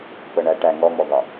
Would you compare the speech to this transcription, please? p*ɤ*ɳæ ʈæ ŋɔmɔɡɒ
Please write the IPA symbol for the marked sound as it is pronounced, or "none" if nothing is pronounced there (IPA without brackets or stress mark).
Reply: ɤ